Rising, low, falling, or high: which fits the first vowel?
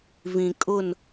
low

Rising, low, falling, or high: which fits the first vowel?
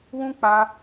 high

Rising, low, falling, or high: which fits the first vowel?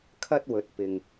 high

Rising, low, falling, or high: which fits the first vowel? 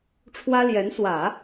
high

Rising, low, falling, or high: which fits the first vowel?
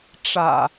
low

